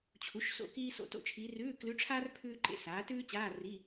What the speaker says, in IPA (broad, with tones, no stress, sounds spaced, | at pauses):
t͡ɕʰ u˩˥ ʃ s o̰˧˥˧ k iː˥ s o̰˧˥˧ t o̰˥ t͡ʃʰ iː˧˥ r ʉː˧˥˧ k l ʉ˧˥ ʈ͡ʂʰ aː˥ r pʰ ʉː˥ ǃ ḛ˧˥ s aː˩˥ t ʉː˥ t͡ɕ aː˧˥˧ r i˧˥˧